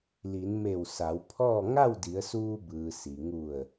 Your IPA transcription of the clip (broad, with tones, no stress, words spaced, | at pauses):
li˩˧nme˧˩w sa˩˧wpʰɔː˥˨ ŋa˥˨wdi˩˧ə̯suː˧bɯː˩ si˩ ŋu˧˩ə̯